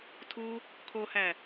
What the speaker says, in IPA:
tʰ u | kʰ o h æ

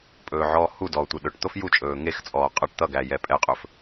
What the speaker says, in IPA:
pʼ ɵː ʕ ɔː h u d ɔː tʷ e ɗ ɵ ʈ t̪ o f j u t͡ʃʼ ɵː ŋ e x t͡sʼ ɔː qʼ ʌ ʈ t̪ ʌ ɡ æ j ɛ pʼ ɛ qʼ ɵ f

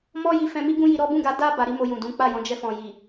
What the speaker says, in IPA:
m ɔ˦ j i˧ f ɛ̃˧ m i˦ ɡ ũ˦ j i˧ ɾ ɔ˦ b ũ˦˨ ɡ a˧ d a˦ b a˧ ɾ i˦ m o˧ j ũ˨ d ũ˨˦ k͡p a˦˨ j ɔ̃˨˦ d͡ʒ ɛ˧ f ɔ̃˨ j i˨

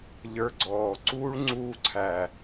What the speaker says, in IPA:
ʎ ə˞˧ ɡ͡ǀ ɔː˨ ǀ uː˦ ɭ ŋ͡ǀ uː˧ ǀʰ æː˨

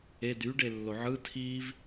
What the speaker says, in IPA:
e d y ɖ e lː o ʕ ɯ tʰ i v

